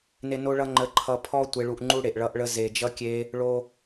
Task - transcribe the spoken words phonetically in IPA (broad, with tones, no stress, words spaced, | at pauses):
ne˦ no˦ɭʌ˦ ŋ͡ǃə˧ǃʰʌ˧ pʰɔ˦ tʷe˧ɭu˧ʔ ŋ͡ǃu˦ ɽe˨ʔɭʌ˧ʔɭə˧ ze˨d͡ʒʌ˧kʲe˧ | ɭo˦